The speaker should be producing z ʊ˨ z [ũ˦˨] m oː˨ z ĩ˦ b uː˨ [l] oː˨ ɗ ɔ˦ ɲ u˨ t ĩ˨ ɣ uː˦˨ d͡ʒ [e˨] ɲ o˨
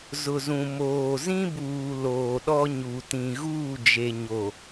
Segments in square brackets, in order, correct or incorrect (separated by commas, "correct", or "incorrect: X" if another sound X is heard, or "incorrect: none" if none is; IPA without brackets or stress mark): incorrect: ũ˨, correct, correct